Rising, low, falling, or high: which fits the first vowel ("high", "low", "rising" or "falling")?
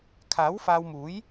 rising